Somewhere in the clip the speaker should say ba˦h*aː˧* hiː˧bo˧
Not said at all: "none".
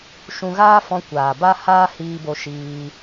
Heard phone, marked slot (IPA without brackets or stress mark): aː˦